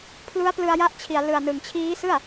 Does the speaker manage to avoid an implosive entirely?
yes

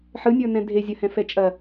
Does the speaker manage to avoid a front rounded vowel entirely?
yes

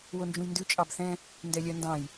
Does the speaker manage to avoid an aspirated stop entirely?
yes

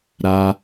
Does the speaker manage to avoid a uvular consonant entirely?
yes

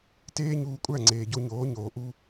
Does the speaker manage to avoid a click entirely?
no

